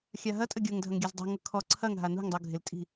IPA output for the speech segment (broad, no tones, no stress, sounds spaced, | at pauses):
xʲ a ɦ ɐ tʼ ə ɡʲ ɤ ŋ dʱ ɐ ŋ ɡʲ a z dˤ ṳ ŋ ɤ kʰ ɔ ǀʰ ɐ ŋ ɦ a n ṳ ŋ dˤ u ɡʱ ɪ l tʼ i̤